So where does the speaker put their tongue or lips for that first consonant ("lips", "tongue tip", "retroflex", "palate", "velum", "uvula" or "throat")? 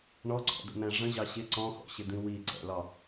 retroflex